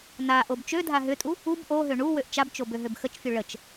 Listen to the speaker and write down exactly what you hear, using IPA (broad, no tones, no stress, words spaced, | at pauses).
naʔob t͡ʃødʱa ɦʏtʼu | ub ʔoɦø ɳu wøʔt͡ʃabt͡ʃob øɦøbxət͡ʃfʲu ɭət͡ʃ